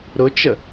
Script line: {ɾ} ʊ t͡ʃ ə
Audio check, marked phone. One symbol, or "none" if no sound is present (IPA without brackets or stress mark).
ɾ